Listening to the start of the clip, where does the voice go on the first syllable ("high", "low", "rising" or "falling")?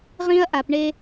high